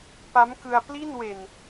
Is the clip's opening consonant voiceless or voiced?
voiceless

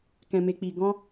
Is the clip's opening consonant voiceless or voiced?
voiceless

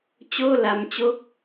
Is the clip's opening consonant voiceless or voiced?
voiceless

